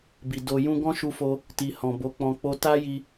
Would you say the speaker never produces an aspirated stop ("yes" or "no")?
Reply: yes